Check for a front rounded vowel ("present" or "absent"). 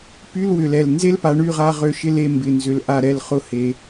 present